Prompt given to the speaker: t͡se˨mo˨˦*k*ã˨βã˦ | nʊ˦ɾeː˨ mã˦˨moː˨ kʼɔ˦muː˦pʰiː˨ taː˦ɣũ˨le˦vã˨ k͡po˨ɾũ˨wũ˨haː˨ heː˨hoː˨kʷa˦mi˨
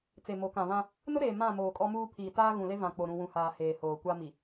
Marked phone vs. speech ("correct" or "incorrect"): correct